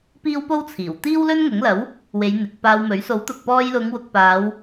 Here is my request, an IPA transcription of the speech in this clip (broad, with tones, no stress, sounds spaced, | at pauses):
p iː˥ w p o˥ w t͡sʰ iː˨˩ w t̪ iː˥ w l ɵ˥ n ŋ ʊ˨˥ ŋ l ɐ˨˥ w | w e˨˧ j n̪ ɪ˨ k̚ p aː˧ w m ɵ˨˥ ɥ s o˨˥ w t̪ ʊ˨ k̚ p ɔː˧ j l ʊ˨˧ ŋ w ʊ˨˥ k̚ p aː˨˧ w